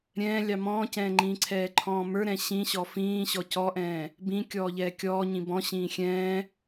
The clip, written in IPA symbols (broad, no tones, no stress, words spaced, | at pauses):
ɾʲɛ̃ːlʲɑ mɔ̃ːcɛ̃ːŋ͡ǃĩːǀʰɛː ǃʰɔ̃ːmə˞ɾɛ̃ ɕĩɕɔ fĩː ɕɔcɔʔɛ̃ː | bĩ kʲɔːʎɛːkʲɔː ɲĩbɔ̃ ɕĩːxʲɛ̃ː